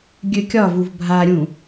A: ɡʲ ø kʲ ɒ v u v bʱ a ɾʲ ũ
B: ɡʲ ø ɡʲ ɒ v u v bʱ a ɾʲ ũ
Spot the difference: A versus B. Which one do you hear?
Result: A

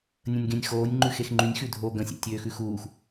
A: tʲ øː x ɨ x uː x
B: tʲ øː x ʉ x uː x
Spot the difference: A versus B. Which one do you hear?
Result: B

